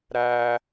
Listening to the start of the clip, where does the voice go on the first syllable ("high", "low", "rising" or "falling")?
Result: high